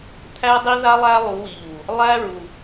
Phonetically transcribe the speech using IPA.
t̪ʰ æ˦ dˤ i˦ ð a˦ lˠ æ˦ lˠ u˨˦ w i˨ ʎ u˨ | lˠ æ˦ ɹ u˨

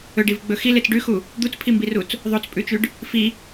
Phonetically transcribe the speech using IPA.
ɵ ɖ i v ɡ͡b ɵ x i l e t͡s ɖ ʉ x u | d̪ u t͡s pʰ i m b i r u t͡s | ðˤ o t͡s pʼ ʉ t͡ʃ ʉ ɖ | f i

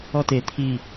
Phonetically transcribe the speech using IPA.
ɔ t e t̪ʰ i

